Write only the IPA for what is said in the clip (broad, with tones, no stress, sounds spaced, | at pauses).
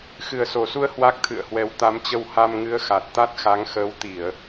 x ɨ˨˩ ə̯ s o˨˩ s u˧ ə̯ h w a˦˥ k̚ t̪ʰ ɨ̰˧˨ ə̯ h w ɛ˨˦ w t̪ a˨˦ m t͡ɕ ə˧ w h a˧ m ŋ ɨ˨˦ ə̯ x a˨˩ t̚ t̪ a˦˥ t̚ x a˨˦ ŋ x əː˨˦ w t̪ i˧˩˨ ə̯